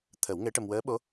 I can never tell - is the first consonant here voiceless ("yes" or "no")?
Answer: yes